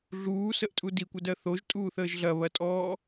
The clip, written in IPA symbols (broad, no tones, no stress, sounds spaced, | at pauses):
ɮ uː s ə ʔ tʼ u d i kʷ ə d ɜ θ o ʒ tʼ uː θ əː ʒ ɮ ɐ β ɐ tʼ ɔː